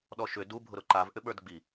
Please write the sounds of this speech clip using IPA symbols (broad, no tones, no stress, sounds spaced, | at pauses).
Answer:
ɗ ɔ ʃ ʏ d u bʱ ʊ ɾ ʊ ǃ a v ʔ ʏ ɓ ə˞ d ɡ͡b i